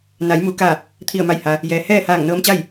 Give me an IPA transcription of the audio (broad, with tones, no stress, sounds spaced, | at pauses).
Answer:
n a˩˧ j m u˩˧ k a˧˩ | t̪ʰ i˧˩ ə̯ m a˧˩ j h a˩ | j ɛː˩ h ɛː˥˨ h aː˧˩ ŋ n ɤː˧˥ m t͡ɕ a˥˨ j